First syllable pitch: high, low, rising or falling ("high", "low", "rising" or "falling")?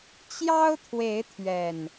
high